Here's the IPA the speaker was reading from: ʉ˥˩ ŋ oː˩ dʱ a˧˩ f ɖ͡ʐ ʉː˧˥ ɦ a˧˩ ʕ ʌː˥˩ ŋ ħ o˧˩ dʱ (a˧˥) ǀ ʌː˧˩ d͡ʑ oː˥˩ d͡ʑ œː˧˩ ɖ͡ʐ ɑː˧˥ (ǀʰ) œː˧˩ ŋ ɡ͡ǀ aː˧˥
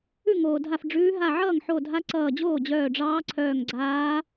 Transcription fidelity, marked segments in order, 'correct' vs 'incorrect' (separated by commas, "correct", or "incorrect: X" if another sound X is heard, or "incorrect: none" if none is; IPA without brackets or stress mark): correct, correct